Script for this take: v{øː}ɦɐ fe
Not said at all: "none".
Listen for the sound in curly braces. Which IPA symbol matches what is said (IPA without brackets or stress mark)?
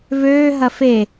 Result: øː